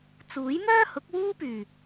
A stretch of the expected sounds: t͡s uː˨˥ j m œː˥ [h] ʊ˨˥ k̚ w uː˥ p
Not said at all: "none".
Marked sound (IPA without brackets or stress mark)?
h